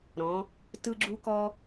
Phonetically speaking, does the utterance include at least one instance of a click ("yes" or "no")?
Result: yes